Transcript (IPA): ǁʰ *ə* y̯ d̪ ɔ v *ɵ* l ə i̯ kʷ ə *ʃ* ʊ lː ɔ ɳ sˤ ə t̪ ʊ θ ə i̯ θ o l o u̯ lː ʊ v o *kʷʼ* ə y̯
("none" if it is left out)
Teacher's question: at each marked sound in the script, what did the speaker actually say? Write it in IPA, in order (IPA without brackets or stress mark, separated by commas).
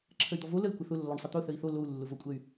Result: ə, o, θ, kʷʼ